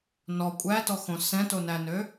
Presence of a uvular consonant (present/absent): absent